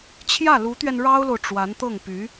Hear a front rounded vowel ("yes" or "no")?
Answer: yes